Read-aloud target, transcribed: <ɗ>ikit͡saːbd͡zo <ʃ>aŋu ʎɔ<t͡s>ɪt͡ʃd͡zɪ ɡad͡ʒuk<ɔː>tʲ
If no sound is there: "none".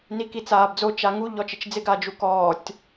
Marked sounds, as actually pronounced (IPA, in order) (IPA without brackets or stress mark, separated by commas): n, t͡ʃ, t͡ʃ, ɔː